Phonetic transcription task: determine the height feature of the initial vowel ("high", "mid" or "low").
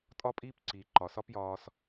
low